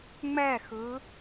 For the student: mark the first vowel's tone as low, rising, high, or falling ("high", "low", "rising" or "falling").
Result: falling